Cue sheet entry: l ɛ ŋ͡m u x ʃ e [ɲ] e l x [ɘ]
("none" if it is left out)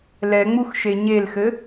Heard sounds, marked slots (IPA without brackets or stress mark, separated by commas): ɲ, ɘ